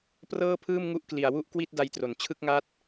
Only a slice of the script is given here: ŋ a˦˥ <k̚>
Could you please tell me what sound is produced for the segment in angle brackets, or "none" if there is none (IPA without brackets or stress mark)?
t̚